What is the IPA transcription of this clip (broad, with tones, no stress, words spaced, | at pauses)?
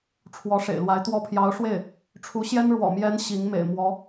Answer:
ʈ͡ʂʰwɔ˧˥ʂḛ˨˩ɪ̯lwa˧˥ɪ̯t̪wɔ˥ pʰjɑ˧˥ʊ̯ʂwe˥˩ɪ̯ | ʈ͡ʂʰu˧˥ɕjɛ˥n ɻwɔ̰˨˩mjɛ˧˥n ɕi˧˥ŋmḛ˨˩ɪ̯ mwɔ˧˥